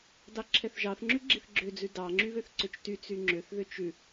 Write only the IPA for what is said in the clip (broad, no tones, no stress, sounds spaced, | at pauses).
d ɑ ǁʰ ɛ θ ʒ ɑ θ ŋ͡ǁ ʉ ɡ͡ǁ i θ ɡ͡ǁ ø d͡z ʉ d ɑ ŋ͡ǁ y β ø θ ǀ ø t͡ʃ t y t͡s y ŋ͡ǁ ø θ ð ø t͡ʃ ʉ